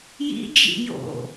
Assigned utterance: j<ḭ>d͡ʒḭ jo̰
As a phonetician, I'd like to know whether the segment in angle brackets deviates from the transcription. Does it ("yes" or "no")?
no